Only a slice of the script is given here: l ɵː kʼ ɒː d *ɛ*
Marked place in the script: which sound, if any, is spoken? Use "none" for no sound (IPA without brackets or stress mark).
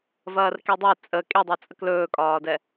ɛ